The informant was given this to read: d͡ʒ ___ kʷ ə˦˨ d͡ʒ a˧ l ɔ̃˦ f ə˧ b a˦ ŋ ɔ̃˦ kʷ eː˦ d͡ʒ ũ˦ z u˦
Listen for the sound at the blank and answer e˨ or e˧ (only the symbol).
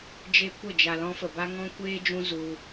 e˧